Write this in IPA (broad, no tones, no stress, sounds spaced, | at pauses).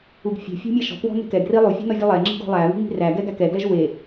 u ɡ fʲ e̤ fʲ e̤ mʲ æ ʃ ɔ̤ k w ɔ̤ n e̤ k ɛ ɡ r i lˠ u fʲ e̤ n ɔ vʲ u lˠ ɛ ŋ͡ǁ i̤ ɡ ɔ̤ lˠ æ β i̤ ŋ i̤ r æ ɡ ɛ ɡ æ k ɛ ɡ l ɛ ʒ w e